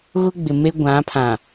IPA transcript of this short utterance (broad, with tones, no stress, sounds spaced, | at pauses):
ɣ ʊ˦ ɡ͡b ɪ˨ m e˦ ɡʷ ã˨˦ pʰ ã˨